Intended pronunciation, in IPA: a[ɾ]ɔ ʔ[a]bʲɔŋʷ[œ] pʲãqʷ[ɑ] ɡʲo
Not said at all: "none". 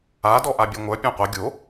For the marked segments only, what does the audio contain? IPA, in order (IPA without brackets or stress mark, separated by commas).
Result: d, a, œ, ɐ